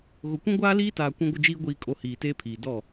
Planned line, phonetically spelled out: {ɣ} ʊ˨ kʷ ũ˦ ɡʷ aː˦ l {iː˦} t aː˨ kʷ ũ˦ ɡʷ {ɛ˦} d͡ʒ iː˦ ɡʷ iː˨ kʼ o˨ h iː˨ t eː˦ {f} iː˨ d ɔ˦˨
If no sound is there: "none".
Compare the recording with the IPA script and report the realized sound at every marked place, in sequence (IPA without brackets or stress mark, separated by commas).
ɣ, iː˦, ɪ˦, pʰ